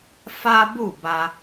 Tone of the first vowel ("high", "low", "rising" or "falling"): high